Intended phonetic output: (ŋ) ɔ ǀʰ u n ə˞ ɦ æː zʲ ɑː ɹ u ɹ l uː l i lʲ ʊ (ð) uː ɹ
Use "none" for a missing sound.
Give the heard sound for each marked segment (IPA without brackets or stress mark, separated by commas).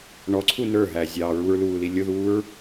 ɳ, ð